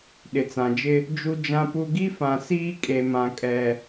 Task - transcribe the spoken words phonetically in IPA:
ɗ ɪ˨ t͡s ã˨ d͡ʒ ɪ˦ | d͡ʒ u˦ d͡ʒ ã˦ p u˦ ɡ i˦ f ã˨ s iː˦ kʼ e˨ m ã˨ kʼ ɛ˨

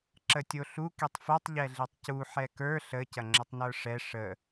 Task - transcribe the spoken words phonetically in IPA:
ǁ ə tʲ o ɬ u k i tˤ f o tˤ ʎ ɛ ɮ i tˤ c u ħ ɛ k ə˞ ɬ ə c ɐ ŋ͡ǁ ə tˤ n ə˞ ʂ ɛ ʂ ə

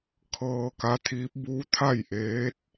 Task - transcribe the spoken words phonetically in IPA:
kʰ ɤː˧ k a˧˥ t̪ʰ iː˧˥ p̚ b u˧˥ t̪ʰ a˥˨ j ʔ eː˧˥ t̚

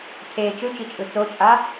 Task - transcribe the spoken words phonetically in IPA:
cʰ e t͡ʃ ɯ t͡ʃ i t͡ʃʼ ɯ t͡s o t͡ʃʼ a

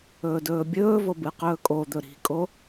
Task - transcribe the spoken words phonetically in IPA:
ɵː d ɵː bʲ ɵː v o b ɨ q ɵː kʼ o d̪ ɵ ɾ i̤ kʼ o

